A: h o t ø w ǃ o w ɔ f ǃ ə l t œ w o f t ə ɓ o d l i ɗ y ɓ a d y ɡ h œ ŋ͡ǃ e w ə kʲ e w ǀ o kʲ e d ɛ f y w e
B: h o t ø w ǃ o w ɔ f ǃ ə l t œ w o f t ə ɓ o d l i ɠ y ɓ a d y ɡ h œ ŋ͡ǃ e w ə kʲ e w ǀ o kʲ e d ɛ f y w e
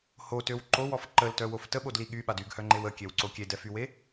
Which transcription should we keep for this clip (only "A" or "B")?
B